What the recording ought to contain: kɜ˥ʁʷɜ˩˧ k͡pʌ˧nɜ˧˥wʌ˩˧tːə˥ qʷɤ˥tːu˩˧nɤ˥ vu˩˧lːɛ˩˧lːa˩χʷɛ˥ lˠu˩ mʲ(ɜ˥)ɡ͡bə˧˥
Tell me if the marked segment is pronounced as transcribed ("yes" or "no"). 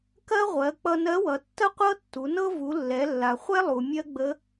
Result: yes